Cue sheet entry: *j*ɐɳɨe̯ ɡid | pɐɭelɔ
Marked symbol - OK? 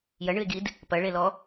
yes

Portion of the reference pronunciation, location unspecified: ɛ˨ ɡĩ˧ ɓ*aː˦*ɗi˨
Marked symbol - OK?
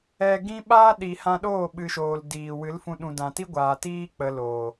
yes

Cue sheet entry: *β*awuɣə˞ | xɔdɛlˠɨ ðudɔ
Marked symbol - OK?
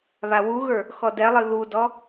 yes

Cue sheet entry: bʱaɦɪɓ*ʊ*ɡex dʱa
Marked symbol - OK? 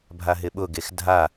yes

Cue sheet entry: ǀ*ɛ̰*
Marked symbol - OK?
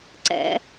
yes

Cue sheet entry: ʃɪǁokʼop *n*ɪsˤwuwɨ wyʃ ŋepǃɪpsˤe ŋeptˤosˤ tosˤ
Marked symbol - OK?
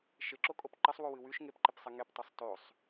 no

